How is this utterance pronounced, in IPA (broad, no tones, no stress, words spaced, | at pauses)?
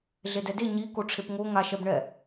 ɮedɛde ɲi koʈ͡ʂʰepŋo ŋaʃɛbɳɛ